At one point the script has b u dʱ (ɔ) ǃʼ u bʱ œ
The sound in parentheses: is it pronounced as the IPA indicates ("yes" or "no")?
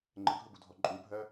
yes